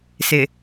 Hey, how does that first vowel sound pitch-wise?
low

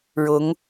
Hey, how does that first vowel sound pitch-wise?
rising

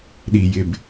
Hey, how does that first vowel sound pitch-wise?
low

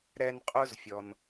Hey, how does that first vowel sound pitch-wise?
high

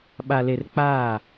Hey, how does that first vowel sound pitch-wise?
low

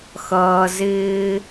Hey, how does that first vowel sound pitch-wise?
low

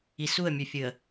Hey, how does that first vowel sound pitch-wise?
low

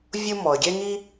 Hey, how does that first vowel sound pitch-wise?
high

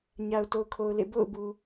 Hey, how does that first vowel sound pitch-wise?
low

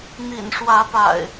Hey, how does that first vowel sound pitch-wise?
low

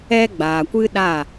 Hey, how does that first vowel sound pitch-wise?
high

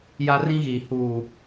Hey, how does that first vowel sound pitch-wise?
high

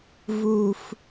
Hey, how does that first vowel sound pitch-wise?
low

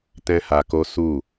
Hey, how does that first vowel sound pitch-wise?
high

